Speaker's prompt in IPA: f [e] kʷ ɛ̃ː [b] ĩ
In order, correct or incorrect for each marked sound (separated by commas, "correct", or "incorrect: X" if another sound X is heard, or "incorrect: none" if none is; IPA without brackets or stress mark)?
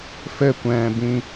incorrect: ɘ, correct